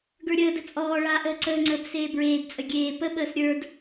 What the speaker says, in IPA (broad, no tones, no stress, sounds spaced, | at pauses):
ɡ ə˞ ɾʲ əː d ə t͡sʼ ɔː ɭ aː ʔ əː ǀ əː ŋ͡ǀ əː b s eː b ɹ eː d t͡sʼ ə ɡʲ eː p ə ɓ əː s ɾʲ ə˞ d